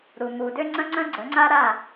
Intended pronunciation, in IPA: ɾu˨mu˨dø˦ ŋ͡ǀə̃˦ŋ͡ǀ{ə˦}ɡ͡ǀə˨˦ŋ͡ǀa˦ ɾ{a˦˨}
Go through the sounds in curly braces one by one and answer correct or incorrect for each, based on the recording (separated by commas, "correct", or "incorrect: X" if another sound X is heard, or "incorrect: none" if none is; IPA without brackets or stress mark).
incorrect: ə̃˦, correct